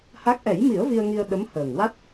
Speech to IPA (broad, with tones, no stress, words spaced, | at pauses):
ha˦˥k̚ ʔɛ˨˩˦jmi˨˩˦ə̯ vi˧ə̯ŋi˧ə̯ ɗə˧˥mhəː˨˩ŋwa˦˥t̚